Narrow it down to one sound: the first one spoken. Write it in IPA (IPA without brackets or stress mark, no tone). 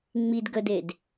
ŋ͡m